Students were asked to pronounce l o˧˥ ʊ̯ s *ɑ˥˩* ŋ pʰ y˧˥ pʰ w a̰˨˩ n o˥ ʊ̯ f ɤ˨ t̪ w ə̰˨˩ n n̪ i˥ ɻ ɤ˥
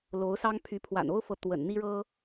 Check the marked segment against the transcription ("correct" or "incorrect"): incorrect